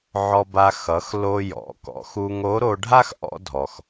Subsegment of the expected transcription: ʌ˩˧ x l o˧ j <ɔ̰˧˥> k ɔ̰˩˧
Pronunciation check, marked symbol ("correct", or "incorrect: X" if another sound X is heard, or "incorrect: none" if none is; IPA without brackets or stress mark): incorrect: ɔ̰˩˧